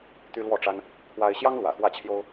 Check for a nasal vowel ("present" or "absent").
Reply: absent